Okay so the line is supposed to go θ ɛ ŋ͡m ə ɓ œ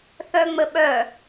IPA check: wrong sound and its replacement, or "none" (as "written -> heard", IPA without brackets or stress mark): ɛ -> œ